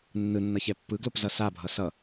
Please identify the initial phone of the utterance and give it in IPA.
nː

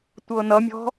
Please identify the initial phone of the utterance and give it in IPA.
tʷ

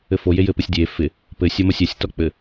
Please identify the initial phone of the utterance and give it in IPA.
ɘ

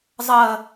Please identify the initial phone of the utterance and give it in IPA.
zˤ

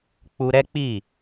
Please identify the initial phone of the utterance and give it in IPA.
k͡p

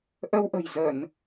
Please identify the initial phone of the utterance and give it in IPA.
ʔ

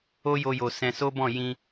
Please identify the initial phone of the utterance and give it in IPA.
o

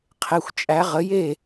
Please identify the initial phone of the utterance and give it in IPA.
qʰ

